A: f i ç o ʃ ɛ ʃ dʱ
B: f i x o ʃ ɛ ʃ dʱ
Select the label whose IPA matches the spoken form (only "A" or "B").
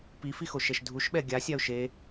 B